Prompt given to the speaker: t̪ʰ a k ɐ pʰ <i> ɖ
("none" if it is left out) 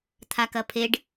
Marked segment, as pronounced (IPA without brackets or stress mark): e